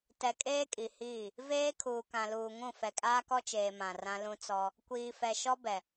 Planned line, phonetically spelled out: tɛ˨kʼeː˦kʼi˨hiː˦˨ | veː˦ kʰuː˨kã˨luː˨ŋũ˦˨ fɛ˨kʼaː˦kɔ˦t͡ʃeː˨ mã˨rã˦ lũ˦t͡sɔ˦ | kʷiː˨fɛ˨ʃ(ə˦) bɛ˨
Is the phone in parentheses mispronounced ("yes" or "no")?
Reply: yes